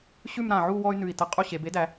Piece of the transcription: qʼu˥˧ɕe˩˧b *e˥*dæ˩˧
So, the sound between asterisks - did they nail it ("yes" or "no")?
yes